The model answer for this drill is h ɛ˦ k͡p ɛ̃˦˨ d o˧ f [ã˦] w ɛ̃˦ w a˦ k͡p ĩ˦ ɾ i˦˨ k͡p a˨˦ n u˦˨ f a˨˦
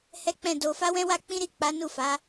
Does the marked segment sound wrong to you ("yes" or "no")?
yes